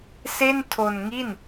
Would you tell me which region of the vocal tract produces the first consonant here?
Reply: tongue tip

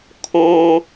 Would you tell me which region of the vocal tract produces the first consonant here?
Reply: velum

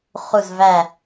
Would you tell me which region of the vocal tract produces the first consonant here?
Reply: uvula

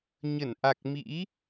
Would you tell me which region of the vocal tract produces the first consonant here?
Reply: palate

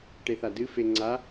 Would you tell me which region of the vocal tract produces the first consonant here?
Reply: retroflex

